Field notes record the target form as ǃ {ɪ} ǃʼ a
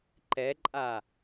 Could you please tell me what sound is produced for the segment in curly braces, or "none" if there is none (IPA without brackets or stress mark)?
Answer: ɛ